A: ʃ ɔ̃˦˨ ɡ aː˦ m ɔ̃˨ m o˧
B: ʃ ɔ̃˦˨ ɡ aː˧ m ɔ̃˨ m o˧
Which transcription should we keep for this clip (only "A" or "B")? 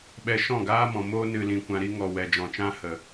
A